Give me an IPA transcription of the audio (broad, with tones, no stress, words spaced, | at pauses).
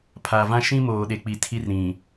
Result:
pʰa˨vã˦ ʃĩ˦ moː˨ɗe˨k͡pi˨ tʰi˦rɾĩ˨